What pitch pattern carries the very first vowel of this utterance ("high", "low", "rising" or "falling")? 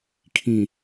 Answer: low